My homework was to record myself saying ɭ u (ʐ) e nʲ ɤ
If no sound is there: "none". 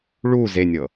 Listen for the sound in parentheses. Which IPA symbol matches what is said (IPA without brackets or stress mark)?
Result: z